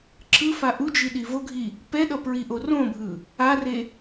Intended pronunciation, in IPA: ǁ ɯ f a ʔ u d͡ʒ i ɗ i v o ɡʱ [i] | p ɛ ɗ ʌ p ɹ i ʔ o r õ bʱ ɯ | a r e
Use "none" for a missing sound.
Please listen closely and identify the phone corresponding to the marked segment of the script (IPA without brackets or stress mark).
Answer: i